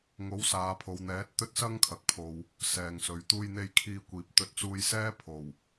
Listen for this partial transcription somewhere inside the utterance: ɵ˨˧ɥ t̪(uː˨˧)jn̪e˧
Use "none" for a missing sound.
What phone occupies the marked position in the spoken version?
uː˧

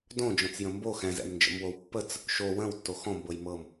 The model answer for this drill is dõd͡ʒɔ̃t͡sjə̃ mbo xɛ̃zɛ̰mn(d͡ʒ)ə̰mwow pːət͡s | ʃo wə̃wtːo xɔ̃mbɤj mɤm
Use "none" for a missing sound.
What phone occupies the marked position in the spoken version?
d͡ʒ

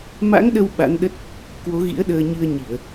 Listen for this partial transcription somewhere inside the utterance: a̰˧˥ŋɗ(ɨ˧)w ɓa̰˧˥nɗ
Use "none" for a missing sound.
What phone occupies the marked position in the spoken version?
ə˧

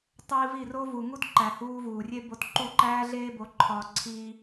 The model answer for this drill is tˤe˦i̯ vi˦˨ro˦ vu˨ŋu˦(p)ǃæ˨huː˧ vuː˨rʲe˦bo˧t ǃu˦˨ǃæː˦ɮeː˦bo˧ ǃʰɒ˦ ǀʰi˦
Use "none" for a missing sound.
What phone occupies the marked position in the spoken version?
t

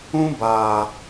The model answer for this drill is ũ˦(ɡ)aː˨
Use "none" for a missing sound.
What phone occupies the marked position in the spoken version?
b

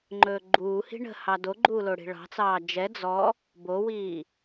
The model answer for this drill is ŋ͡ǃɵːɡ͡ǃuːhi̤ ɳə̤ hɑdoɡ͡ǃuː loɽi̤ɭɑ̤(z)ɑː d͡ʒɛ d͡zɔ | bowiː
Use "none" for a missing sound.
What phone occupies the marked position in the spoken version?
t͡s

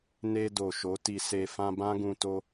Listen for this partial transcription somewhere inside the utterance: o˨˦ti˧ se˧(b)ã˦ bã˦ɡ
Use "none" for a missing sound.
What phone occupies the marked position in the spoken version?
f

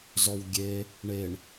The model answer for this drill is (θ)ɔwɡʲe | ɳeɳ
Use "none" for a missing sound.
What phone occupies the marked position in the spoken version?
z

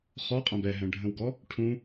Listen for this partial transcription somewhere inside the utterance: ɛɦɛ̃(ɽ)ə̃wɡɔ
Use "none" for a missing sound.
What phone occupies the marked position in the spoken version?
ɖʱ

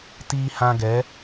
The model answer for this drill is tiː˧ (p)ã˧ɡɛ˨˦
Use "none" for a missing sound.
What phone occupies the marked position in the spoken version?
h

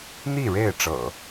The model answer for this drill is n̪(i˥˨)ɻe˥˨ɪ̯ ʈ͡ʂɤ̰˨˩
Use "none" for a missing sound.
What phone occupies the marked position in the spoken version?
i˥˨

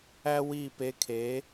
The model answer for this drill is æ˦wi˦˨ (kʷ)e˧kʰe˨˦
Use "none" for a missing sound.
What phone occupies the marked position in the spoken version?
p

